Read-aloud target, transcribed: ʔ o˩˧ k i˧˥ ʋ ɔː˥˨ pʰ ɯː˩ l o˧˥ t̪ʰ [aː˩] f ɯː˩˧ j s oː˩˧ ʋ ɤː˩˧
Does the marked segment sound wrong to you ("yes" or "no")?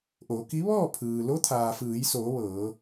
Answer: no